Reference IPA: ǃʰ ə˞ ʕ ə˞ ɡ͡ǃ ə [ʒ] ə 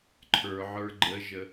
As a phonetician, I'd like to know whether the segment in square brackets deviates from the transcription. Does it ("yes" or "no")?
no